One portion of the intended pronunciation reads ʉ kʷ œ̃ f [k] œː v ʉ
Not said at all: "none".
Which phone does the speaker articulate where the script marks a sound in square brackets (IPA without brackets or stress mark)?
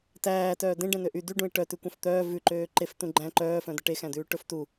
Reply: t̪